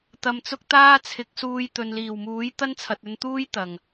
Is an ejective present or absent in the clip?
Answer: absent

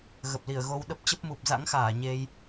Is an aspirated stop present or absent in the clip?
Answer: absent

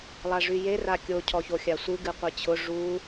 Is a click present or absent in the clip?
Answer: absent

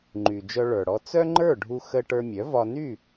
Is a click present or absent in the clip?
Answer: present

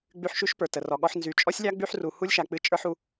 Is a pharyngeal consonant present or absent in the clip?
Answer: present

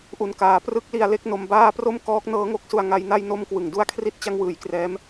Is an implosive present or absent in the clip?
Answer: absent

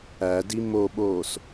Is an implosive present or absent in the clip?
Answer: present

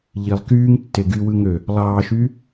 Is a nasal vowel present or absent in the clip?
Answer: absent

